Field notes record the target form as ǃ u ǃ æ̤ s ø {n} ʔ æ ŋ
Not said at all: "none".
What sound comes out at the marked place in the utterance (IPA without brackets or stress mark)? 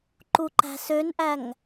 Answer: n